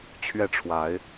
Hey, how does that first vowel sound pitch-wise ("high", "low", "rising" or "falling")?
falling